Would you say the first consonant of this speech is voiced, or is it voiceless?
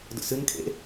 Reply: voiced